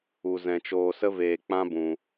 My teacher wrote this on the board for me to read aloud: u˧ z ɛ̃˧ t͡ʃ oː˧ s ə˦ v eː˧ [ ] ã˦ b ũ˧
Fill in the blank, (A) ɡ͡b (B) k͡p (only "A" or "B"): B